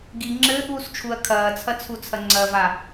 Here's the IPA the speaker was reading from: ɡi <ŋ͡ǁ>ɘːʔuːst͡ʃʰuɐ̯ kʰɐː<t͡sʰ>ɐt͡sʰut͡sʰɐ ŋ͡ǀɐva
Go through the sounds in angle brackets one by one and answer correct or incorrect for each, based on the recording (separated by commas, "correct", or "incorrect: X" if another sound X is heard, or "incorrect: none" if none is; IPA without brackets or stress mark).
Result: correct, correct